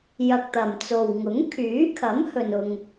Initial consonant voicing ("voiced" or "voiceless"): voiced